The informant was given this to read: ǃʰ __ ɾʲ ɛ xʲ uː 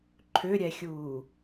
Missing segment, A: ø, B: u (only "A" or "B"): A